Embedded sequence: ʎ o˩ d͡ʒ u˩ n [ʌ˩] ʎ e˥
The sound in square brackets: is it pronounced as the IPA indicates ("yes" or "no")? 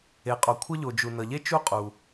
yes